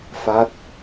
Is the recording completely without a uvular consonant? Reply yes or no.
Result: yes